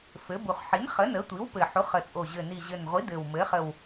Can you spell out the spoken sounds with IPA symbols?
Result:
f ɘ˩˥ b u˨˩ χ ħ i˩˥ n χ ə˩˥ n ə˩˥ tʷ i˩˥ w p ɘ˨˩ ħ u˩˥ χ ə˨˩ t͡sʼ o˨˩ ʑ ɘ˨˩ n i˨˩ ʑ ɘ˨˩ n ʁʷ i˩˥ d ɘ˨˩ w m ɘ˩˥ χ ə˨˩ w

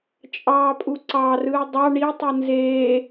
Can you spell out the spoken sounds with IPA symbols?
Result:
t͡ʃʼ ɑː pʼ u ǀ ɑ r ɯː dˤ ɑ ɳ i tˤ ɯ n z eː

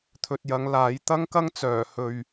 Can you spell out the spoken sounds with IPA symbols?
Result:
t̪ʰ ɵ˨ t̚ j ɐ˨˧ ŋ l aː˨˥ j t̪ ɐ˧ ŋ k ɐ˧ ŋ t͡s œː˨˩ h ɵ˨ ɥ

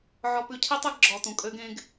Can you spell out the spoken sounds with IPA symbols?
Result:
ʕ ɔ˨ p ʉ˨ cʰ i˦ tˤ e˦ ɡ ɡ͡ǁ ɔ˨ t ũ˨ kʼ ø˦ ɡ ẽ˦ ɡ

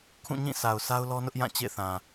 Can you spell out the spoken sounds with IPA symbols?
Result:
kʰ ũ˦˨ ɲ ĩ˦˨ sʰ a˨ ʊ̯ s a˦ ʊ̯ l ɔ˦ n ʊ˦ ʔ j ã˦˨ t͡ɕ ḛ˦˨ θ ã˨

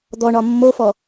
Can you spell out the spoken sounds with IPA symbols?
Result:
d̪ ɔ ɳ ɒ mː o f ɔ

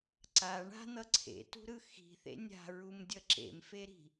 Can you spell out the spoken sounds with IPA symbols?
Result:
ǀ a ɳ a̤ n̪ ʌ ǀʰ ḛ t ṳ ɾ ɯ x i̤ θ ḛ nʲ a̤ ɹ u m dʲ ʌ ǁ ḛ m f e ɾ i̤

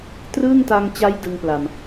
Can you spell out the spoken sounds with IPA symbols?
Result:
t r ɯː˥˩ ŋ t a˧ ŋ t͡ɕ a˦˥ j d ɯ˧ ŋ p l a˨˩ m

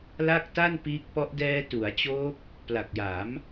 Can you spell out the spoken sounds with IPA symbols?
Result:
l a˥˩ k̚ t a˥˩ n p iː˦˥ k̚ p ɔ˦˥ ʔ d ɛː˧ t u˩˦ a̯ t͡ɕ oː˦˥ p̚ | p l a˨˩ k̚ j a˩˦ m

